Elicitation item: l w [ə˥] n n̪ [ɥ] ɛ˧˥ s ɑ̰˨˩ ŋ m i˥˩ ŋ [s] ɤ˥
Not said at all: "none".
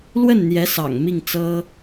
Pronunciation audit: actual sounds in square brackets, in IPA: ə˥˩, j, t͡s

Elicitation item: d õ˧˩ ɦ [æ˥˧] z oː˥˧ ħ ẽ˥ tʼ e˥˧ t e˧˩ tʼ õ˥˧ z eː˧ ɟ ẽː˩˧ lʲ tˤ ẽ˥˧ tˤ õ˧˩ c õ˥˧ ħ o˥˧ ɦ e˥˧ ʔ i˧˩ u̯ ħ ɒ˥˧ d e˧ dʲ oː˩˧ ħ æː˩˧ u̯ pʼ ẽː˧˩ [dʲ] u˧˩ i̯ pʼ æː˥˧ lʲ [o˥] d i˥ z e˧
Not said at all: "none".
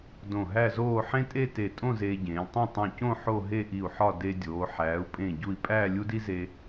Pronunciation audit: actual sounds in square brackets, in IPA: æ˥˧, ɟ, u˥

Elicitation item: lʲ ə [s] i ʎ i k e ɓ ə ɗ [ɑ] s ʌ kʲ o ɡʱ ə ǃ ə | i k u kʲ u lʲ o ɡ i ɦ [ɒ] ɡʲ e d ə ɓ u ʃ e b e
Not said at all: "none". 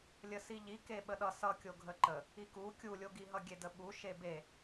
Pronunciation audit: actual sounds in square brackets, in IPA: s, ʌ, ʌ

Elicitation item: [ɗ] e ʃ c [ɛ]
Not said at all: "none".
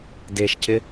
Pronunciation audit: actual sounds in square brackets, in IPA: d, ɪ

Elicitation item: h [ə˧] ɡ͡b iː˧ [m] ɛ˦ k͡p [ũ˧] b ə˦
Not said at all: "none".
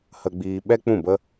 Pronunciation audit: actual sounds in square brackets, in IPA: ə˧, ɓ, ũ˦˨

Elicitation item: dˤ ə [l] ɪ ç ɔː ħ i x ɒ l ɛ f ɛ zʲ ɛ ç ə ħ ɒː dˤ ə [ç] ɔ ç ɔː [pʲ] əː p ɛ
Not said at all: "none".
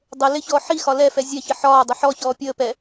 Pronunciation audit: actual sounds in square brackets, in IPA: l, ħ, pʲ

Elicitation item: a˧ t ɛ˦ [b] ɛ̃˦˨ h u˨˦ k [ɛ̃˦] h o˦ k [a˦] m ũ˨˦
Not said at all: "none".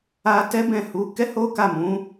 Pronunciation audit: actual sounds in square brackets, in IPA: b, ɛ˦, a˦˨

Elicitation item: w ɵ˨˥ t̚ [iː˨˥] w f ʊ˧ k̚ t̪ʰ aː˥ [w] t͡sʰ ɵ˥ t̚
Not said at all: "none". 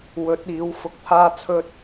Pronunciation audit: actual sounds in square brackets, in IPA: iː˨˥, none

